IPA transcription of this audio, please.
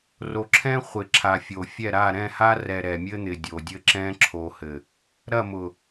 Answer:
ro˨ǁʰɛ̃˦χʷɪ˨ǁʰa˨ fʲo˨fʲɛ˦˨ɾa˦˨ ɾɛ̃˦˨ha˦rɛ˨ ɾɛ˨mʲɘ˦n̪ɪ˨ dʲo˨dʲɘ˦ǁɛ̃˦ ǁʰo˨hɘ˨ | ɾɐ˦˨mʊ˨

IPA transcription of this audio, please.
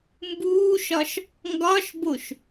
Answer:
mbuːʃɒʃ | ŋɡɒʃboʃ

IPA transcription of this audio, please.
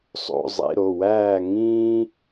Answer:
sˤo̰˧˥˧ zˤḭ˧˥˧ɾo˩˧˩ wæː˥˨ ŋĩː˥

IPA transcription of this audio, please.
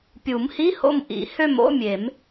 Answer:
pʲu˨˩˦mhi˧˥˧ ho̰˦˨m ʔḭ˨˩˦hø˦˨m o̰˧˥˧ mʲe˨˩˦m

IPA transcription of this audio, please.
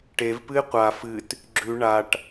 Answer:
ʈevpɨɪ̯ qʷa fɨt | ɡ͡ǁʉ ɳaʈ

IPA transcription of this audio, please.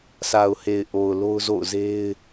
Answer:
sa˨ʊ̯he˨ɪ̯ ʔo˨ʊ̯lo˦ʊ̯zo̰˦˨ʊ̯ze˦ɪ̯

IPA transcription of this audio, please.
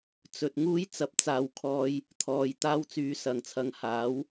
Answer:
t͡sɵ˨t̚ŋuː˥j t͡sɐ˨˥p̚t͡saː˨wkʰɔː˧j | t̪ʰɔː˨j t̪aː˥wt͡syː˧sɐ˨ŋt͡sʰɐ˧ŋ haː˨˥w

